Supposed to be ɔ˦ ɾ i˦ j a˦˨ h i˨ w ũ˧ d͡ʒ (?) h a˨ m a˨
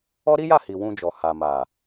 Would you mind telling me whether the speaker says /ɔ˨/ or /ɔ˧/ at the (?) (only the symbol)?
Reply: ɔ˨